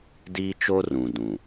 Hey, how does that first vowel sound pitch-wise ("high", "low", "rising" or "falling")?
high